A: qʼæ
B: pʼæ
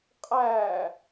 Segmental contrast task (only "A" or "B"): A